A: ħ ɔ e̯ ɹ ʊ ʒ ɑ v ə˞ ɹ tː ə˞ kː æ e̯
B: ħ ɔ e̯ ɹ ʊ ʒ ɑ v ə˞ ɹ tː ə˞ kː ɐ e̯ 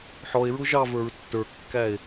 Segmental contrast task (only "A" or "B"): A